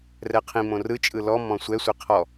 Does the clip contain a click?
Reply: no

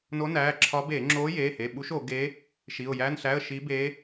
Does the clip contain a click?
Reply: yes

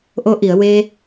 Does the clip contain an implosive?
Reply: no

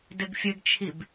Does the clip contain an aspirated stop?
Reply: yes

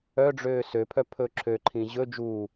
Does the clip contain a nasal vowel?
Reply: yes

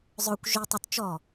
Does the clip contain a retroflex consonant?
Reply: no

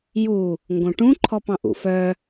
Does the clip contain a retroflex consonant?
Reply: yes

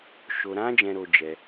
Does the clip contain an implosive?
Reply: no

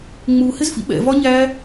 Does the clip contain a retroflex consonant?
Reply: no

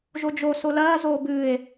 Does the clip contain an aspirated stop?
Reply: no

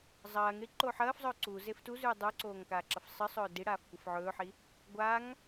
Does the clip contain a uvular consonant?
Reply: no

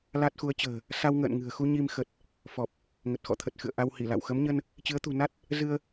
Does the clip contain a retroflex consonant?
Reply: no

